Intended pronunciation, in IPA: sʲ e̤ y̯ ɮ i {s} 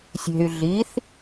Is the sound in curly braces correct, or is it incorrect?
incorrect